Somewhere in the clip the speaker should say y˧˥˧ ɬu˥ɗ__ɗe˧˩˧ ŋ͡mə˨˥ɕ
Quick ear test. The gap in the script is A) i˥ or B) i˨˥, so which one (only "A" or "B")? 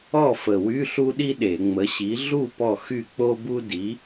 A